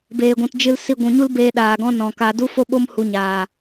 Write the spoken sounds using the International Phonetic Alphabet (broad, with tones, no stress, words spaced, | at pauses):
beː˨ɡʷũ˨t d͡ʒɨ˧l si˧ɡʷũ˨ɲu˦lbeː˧ ɗaː˨ɡɔ̃˦ nɔ̃˨ka˧ du˦fo˦ɓo˦m hu˧ɲaː˨